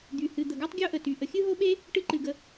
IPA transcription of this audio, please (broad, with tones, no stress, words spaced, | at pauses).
d̪y˩hɨ˩ d̪ə˩ɡɜ˥tˤɡʲo˥ʔə˩ ty˩ ʔə˩xʲɨ˥ɦo˥ɓe˥ | ʈɨ˥ǃɨ˩ɡə˩